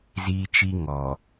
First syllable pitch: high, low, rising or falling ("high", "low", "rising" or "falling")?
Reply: high